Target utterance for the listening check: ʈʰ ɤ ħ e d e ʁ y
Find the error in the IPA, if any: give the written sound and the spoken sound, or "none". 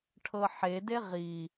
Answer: y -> i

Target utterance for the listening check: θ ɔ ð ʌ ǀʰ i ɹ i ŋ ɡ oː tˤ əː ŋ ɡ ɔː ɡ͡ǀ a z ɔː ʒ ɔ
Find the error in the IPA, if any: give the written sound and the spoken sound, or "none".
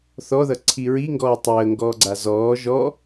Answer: oː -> ɔː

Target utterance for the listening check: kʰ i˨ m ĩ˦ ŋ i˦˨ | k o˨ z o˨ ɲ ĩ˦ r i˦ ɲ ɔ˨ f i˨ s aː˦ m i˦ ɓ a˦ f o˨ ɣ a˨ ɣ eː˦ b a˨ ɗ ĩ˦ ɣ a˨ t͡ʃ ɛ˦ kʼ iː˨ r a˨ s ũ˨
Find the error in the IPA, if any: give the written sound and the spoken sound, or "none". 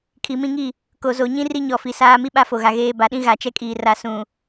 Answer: none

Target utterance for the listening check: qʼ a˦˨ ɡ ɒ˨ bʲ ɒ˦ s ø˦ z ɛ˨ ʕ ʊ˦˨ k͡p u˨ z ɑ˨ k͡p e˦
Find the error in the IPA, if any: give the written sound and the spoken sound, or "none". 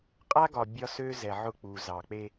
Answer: a˦˨ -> a˦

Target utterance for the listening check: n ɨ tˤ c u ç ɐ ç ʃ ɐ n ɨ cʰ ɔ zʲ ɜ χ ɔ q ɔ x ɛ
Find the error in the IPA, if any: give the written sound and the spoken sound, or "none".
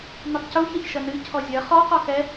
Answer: none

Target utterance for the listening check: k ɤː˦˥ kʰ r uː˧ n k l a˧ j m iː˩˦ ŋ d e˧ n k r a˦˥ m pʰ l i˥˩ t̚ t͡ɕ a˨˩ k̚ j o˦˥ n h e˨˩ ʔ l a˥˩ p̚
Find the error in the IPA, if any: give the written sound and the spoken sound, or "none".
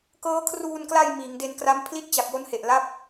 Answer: none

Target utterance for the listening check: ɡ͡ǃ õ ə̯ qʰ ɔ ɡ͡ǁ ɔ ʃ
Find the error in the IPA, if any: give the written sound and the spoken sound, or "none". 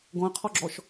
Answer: ɡ͡ǃ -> ɡ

